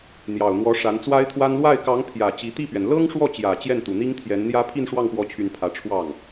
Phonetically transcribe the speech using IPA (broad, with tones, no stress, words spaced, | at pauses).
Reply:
n̪jɑ˨˩ʊ̯n̪wɔ˧˥ ʂa˧˥nt͡swa˥ɪ̯t̪ʰwa˥n lwa˥˩ɪ̯ kɑ˧˥ŋ pʰjä˨˩ t͡ɕi˧˥ t̪i˥˩pɥɛ˩n lɤ˥ŋʂwɔ˥˩t͡ɕjä˨˩ t͡ɕjɛ˥˩nt̪u˨˩n̪i˥ŋt̪ʰjɛ˧˥n n̪jä˥ pʰi˥˧nʂwɑ˥˩ŋpwɔ˧˥t͡ɕʰy˨˩n pʰä˧˥ʈ͡ʂʰwɑ˥˩ŋ